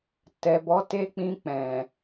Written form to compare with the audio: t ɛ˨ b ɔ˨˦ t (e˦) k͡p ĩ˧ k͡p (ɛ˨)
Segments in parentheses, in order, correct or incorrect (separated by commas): correct, incorrect